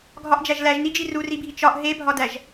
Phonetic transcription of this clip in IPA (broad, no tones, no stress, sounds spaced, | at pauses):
ɡʱ ɒ ʔ d͡ʒ æ ʒ l æ ʒ n i d͡ʒ i r u r i bʱ i t͡ʃ ɒ ʔ ɦ e bʱ ɒ d æ ʒ